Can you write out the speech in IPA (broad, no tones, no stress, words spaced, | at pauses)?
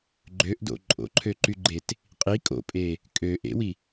ɡ͡ǃøʔdo̰ ǃʼo̰ǃʰøǃyɡ͡ǃet | qʼi kʼo̰pʼe | kʼø ʔḛwi